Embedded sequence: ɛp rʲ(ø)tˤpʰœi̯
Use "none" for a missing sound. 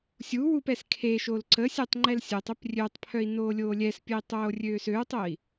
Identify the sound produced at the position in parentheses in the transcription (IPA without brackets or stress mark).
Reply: ø